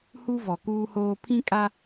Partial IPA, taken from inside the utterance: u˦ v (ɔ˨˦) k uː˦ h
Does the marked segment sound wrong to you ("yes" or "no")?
yes